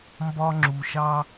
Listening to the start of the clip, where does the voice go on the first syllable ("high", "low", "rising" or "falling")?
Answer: high